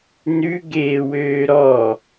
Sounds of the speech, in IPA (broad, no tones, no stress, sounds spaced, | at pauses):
n ʉ ɡ eː w øː ɾ ɔ